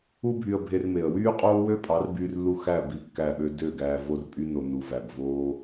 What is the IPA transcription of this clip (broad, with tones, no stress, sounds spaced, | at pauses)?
u˦ bʱ y˧ ə̯ bʱ e˧ r m e˨ ə̯ w yː˦ qʼ oː˦ w ø˦ pʼ ɑ˨˦ r b yː˧ r lː u˧ x æ˦˨ b i˦˨ kː æ˦˨ ɓ ø˦ d ø˦˨ ɡ æː˧ v o˦ r pʼ y˦ n o˧ n u˨ v æ˨ b v oː˦